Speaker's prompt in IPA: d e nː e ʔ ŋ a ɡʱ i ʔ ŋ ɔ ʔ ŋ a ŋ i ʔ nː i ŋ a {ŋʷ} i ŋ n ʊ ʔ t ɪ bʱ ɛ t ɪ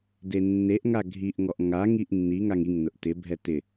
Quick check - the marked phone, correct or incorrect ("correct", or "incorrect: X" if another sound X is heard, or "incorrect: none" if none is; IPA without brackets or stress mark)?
incorrect: ŋ